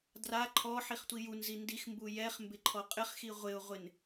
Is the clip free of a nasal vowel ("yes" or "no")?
yes